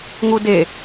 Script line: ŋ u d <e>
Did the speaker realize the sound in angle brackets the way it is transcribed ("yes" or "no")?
yes